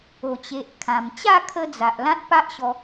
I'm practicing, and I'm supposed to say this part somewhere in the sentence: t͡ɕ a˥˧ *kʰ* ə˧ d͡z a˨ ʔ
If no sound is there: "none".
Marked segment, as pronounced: kʰ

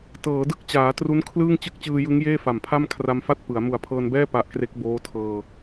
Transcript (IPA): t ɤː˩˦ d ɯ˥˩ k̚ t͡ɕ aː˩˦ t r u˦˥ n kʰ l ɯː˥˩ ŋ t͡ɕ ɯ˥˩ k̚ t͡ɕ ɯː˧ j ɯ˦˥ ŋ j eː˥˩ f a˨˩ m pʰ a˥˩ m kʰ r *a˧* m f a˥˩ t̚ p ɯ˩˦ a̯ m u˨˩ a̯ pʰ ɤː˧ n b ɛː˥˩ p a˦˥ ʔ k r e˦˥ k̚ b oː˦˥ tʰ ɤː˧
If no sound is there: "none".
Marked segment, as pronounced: a˧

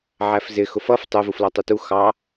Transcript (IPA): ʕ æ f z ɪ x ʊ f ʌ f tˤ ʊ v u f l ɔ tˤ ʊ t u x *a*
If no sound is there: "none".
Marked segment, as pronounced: ɑ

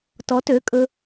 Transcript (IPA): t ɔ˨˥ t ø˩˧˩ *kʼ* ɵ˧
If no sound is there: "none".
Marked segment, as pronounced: kʼ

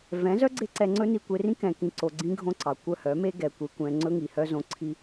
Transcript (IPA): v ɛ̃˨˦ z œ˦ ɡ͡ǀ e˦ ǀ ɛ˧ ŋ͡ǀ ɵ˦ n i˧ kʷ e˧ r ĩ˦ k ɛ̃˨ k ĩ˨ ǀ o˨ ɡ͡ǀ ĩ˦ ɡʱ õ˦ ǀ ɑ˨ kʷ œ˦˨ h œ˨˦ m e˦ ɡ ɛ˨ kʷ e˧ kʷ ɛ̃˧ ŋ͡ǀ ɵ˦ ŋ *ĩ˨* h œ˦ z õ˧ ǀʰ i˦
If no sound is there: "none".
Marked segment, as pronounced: i˨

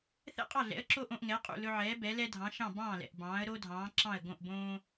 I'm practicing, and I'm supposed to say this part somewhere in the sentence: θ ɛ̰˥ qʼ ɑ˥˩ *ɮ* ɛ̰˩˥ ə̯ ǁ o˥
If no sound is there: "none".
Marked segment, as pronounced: ɮ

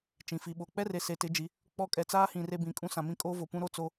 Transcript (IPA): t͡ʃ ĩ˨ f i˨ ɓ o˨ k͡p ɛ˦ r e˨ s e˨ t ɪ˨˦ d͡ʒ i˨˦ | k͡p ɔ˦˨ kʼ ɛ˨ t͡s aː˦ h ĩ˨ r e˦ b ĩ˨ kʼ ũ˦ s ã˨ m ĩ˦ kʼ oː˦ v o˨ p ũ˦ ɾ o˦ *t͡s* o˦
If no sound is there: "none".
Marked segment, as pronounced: t͡s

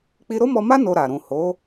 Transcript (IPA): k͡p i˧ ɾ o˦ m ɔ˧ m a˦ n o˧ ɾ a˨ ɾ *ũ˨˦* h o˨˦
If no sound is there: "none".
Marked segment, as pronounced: ũ˨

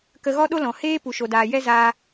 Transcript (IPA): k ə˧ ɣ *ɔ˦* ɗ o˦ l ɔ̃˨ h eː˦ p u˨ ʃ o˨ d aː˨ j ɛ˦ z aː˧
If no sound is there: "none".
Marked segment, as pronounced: ɔ˦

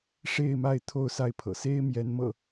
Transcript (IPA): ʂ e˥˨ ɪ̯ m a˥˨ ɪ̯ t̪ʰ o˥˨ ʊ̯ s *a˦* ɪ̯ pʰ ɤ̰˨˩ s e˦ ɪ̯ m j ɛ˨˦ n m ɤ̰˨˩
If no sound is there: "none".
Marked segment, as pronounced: a˦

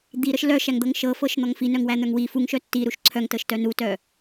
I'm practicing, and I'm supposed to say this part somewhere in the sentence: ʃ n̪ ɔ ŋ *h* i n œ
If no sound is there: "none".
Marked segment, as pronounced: f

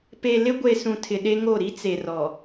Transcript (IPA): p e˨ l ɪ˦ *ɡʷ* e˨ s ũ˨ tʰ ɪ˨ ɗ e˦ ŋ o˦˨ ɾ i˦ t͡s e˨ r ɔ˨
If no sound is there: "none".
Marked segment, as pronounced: ɡʷ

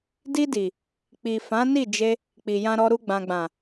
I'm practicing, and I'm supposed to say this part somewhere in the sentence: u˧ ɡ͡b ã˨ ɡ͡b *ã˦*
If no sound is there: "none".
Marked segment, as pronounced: ã˨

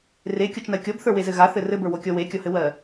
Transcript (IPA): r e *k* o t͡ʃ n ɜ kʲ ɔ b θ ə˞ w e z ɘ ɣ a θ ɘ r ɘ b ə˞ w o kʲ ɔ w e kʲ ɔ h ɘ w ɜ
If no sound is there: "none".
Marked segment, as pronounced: kʲ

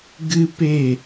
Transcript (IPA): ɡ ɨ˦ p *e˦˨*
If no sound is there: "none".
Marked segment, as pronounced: e˦˨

